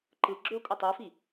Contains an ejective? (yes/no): yes